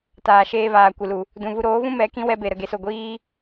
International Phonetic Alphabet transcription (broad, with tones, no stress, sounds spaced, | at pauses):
t aː˨ ʃ eː˧ v aː˨ kʷ ɨ˨ l u˨ | d ũ˨ v u˧ ɾ oː˨˦ v ũ˦ m ɛ˨˦ k ĩ˦ w ɛ˧ b e˨ ɾ ə˨ ɡ e˨ s o˨ ɡʷ iː˦